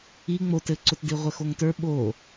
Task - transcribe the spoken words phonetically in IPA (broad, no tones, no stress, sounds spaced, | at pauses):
i ŋ͡m o t ɘ ǀ ʊ t d i ʁʷ ɘ x o ŋ t ə˞ ɓ o